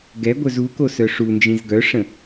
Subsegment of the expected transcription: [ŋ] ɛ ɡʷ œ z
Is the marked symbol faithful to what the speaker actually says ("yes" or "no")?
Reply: no